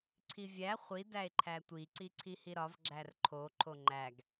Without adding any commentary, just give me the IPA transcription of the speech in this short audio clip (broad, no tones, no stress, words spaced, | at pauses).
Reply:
ǀʰivʲæ χʷi dæe̯ǃʰætʷi ǀiǀʰihiɾɒv ɡ͡ǁærǃʰo ǃʰoŋ͡ǃæɡ